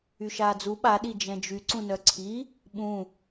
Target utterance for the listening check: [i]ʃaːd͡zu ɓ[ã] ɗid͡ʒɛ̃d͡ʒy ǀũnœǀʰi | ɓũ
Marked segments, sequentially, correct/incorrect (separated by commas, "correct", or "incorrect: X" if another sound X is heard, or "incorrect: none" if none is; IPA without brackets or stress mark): incorrect: y, incorrect: a